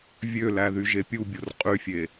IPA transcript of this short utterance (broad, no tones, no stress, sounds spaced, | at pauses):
vʲ ø l æ ð y ʒ e pʲ u bʲ o r qʼ y fʲ e